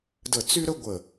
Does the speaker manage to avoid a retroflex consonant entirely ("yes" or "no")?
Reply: yes